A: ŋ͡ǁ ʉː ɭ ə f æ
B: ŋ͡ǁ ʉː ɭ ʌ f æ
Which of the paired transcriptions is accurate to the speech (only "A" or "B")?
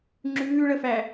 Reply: A